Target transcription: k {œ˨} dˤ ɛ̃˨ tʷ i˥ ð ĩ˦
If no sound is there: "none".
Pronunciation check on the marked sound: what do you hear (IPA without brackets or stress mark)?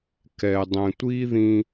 ɛ˨